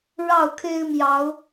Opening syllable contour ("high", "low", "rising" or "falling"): falling